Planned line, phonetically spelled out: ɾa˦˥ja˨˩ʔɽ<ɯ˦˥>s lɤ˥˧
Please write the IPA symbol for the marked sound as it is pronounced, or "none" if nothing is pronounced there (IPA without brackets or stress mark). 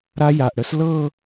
ə˦˥